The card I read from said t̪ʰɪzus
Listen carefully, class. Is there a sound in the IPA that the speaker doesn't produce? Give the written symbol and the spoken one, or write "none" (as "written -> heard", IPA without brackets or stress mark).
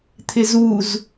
s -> z